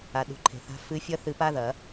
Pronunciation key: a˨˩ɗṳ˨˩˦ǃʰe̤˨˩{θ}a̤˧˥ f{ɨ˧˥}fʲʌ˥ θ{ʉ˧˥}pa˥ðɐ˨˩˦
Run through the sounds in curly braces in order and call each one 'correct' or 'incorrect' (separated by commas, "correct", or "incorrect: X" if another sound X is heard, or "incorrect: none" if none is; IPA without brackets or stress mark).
correct, correct, incorrect: ɨ˧˥